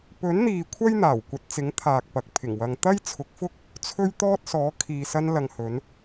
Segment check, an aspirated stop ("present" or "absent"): present